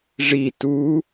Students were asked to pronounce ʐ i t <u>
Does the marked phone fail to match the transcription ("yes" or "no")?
no